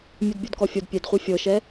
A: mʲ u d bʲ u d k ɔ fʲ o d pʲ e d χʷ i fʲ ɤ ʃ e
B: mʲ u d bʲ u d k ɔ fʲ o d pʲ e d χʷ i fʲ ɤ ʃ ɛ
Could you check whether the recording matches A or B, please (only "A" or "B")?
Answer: B